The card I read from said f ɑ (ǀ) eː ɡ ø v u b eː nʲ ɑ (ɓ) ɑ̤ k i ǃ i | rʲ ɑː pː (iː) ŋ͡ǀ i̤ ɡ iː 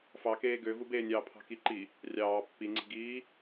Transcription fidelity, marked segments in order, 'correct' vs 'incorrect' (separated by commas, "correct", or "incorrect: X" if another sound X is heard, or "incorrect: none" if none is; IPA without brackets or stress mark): incorrect: k, incorrect: pʰ, incorrect: i